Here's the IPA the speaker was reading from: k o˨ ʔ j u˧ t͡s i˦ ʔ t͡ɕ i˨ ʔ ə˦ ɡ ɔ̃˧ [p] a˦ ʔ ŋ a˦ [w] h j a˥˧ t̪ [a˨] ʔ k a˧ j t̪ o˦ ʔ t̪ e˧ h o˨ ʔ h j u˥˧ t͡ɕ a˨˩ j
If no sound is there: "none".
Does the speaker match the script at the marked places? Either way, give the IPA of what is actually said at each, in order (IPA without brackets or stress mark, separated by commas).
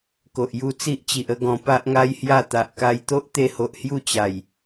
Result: p, j, a˨